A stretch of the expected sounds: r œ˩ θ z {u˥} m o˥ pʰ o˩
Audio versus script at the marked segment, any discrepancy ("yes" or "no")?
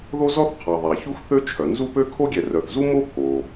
no